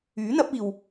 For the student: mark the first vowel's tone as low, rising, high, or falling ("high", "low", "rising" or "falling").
rising